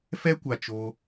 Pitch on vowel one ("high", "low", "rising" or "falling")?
high